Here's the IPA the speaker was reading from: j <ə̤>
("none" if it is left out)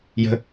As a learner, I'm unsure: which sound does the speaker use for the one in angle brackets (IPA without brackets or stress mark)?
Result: ə̤